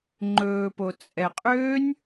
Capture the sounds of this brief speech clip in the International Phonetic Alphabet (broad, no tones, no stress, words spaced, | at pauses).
ŋ͡ǃɵːpo t͡sʼɛqʼøːnʲ